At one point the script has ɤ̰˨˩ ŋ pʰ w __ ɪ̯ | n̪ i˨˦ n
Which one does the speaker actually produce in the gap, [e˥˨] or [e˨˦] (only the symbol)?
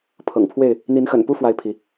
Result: e˥˨